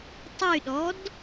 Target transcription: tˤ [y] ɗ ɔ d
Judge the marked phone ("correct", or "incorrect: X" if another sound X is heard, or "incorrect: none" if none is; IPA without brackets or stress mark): correct